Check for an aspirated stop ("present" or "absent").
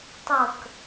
absent